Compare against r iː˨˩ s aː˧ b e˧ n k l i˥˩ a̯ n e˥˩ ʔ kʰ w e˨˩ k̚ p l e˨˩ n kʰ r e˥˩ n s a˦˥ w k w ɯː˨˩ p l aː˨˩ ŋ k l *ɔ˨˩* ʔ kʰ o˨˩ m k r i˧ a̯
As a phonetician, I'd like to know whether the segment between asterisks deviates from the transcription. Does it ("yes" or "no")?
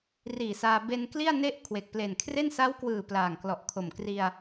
no